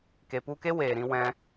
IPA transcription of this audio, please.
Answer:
k e˧ p u˦ k e˦ w eː˨ ɾ ĩ˧ w ɛ̃˦

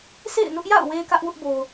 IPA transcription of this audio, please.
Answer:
sʰ ḛ˦˨ ɪ̯ n ʊ˦ ʔ j a̰˦˨ ʊ̯ w e˦ ɪ̯ k ä˦ ʔ w ʊ˦ ʔ b o˨ ʊ̯

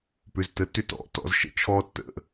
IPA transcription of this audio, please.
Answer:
p ʏ˩˧˩ z t ə˩˧˩ tː ʏ˦ t ɔ̰˩˧˩ t ɔ̰˦ z ʃ ə̰˦ t͡ʃʰ ɔ˦ tː ə̰˩˧˩

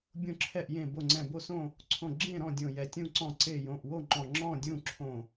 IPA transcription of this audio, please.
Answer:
bʲ õ˧˩ ǁʰ ɛ˧˩ ʔ j ẽ˧˩ b o˧˩ ŋ͡ǀ ɛ̃˧˩ b o˥˨ s õ˥˨ | ǀʰ õ˧˩ ɡ͡ǁ ẽ˥˨ ɾ ɔ̃˥˨ dʲ õ˧˩ j ɛ˧˩ tʲ ũ˥˨ ǀ ɔ̃˧˩ ǀ e˧˩ j õ˧˩ ʔ w o˥˨ ŋ͡ǃ ɔ̃˧˩ ŋ͡ǁ ɔ̃˥˨ dʲ ũ˥˨ ǁʰ õ˧˩

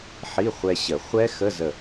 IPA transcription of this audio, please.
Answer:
ħ i˧˥˧ χʷ ɛ˧ ɕ ə˨˩˦ χʷ ɛ˦˥ x ə˧˥˧ z ə˧˩

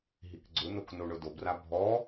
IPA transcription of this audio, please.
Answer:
ɦ i k ɡ͡ǀ ʊ n o k n o ɳ ʊ d o b r a bʱ ɔ

